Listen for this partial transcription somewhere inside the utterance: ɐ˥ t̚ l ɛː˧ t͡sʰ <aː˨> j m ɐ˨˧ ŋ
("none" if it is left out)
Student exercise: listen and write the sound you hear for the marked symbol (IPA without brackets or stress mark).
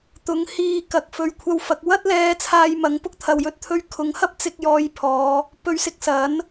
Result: aː˧